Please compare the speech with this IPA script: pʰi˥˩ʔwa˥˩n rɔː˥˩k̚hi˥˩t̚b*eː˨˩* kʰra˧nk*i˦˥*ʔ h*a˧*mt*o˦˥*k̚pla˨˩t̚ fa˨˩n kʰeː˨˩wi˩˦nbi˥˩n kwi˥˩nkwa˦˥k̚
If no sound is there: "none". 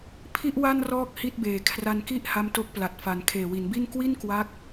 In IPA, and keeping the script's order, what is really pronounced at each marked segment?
eː˨˩, i˥˩, a˦˥, o˦˥

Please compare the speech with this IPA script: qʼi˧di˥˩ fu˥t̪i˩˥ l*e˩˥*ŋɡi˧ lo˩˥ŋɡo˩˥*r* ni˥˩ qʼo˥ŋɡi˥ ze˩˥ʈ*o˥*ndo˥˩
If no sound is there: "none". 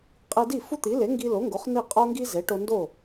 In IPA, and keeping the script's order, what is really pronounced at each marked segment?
e˩˥, χ, o˧

